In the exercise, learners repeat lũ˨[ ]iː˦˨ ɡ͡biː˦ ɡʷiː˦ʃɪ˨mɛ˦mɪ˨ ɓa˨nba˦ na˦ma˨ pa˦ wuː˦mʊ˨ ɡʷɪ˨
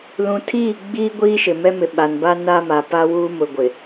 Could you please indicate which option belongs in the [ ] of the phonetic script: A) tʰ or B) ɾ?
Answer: A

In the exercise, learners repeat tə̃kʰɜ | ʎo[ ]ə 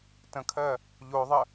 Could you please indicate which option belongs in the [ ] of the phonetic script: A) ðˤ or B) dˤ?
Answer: A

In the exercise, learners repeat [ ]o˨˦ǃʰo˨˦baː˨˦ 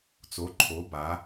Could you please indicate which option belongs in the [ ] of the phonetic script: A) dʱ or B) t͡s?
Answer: B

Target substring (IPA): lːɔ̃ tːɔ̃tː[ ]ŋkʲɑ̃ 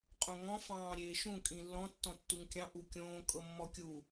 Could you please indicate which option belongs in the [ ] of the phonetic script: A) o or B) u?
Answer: B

